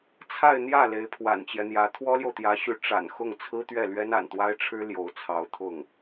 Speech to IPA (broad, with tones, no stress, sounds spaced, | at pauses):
t͡sʰ a˥˧ ɪ̯ n̪ j ä˥˩ l e˧˥ ɪ̯ pʰ w a̰˨˩ n t͡ɕ j ɛ˦ n̪ j ä˧˥ t̪ʰ w ɔ˥ l j o˨ ʊ̯ t̪ j ä˧˥ ɕ y˧˥ ʈ͡ʂ a̰˨˩ n x ʊ˥˩ ŋ t͡sʰ ɹ̩˥ t̪ ɥ ɛ˥˩ l ɥ ɛ˥ n a̰˨˩ n t̪ w a˥ ɪ̯ ʈ͡ʂʰ ɻ̩˥ l j o˧˥ ʊ̯ t͡sʰ ɑ˧˥ ʊ̯ t̪ʰ ʊ˥˩ ŋ